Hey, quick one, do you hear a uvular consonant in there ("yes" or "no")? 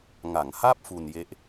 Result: no